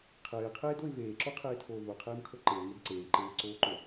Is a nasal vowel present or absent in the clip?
absent